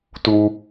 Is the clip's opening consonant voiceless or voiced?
voiceless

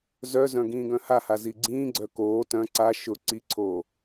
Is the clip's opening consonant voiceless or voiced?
voiced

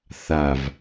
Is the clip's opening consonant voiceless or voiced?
voiceless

